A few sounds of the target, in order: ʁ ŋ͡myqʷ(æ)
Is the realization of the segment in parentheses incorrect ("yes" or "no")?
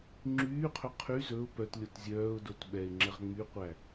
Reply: no